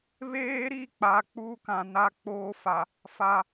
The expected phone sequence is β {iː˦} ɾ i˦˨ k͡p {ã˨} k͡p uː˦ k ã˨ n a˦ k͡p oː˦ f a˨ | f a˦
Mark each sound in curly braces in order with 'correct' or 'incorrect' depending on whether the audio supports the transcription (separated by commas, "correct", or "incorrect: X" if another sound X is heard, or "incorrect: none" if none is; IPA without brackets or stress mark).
incorrect: eː˦, incorrect: a˨